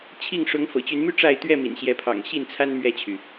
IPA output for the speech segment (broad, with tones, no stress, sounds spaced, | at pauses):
t͡ɕʰ i˥˨ ŋ ʂ ʊ˨˦ ŋ f ɤ̰˨˩ t͡ɕ y˨˦ n m y˥˨ ʈ͡ʂ a˥˨ ɪ̯ t̪ ɥ ɛ˥˨ m ḭ˨˩ n ɕ j ɛ˨˦ pʰ ɑ̰˨˩ ŋ ɕ i˥˨ n t͡sʰ a˦ n m ɥ ɛ˥˨ t͡ɕʰ y˩